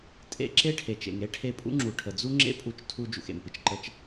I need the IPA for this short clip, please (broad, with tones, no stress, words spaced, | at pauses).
tʼḛ˧ǁe˥ ʈʰe˩t͡ʃḛ˩ŋɾe˥ ʈʰe˧pʼṵ˥ŋ͡ǁu˩ ʈʰə˩d͡zu˥ŋ͡ǁḛ˥ pʼu˧t͡ʃ tʰu˧ d͡ʒṵ˩xḛ˩mpɨ˩t͡ʃ ǃə˧t͡ʃ